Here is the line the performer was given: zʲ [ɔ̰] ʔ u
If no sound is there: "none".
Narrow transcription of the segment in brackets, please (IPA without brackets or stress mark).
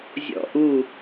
ɔ̰